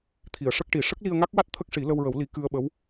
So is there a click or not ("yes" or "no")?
no